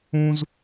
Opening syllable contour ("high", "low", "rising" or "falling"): high